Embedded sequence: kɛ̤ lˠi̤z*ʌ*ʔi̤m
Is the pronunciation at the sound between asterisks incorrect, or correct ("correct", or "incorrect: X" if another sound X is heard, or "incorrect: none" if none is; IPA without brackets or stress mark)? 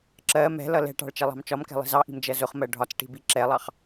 incorrect: ɑ